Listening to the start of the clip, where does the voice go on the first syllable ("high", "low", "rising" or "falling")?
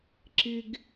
high